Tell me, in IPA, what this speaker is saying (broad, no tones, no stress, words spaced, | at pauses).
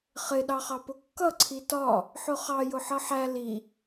χɪ ɗɑχɑpʊkːʌ ǀʰitɒ | ħʊχɑ jʊħʌħæ li